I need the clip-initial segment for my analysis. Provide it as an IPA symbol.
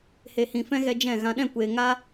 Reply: h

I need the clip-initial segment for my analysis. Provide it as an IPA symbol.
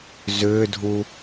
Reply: z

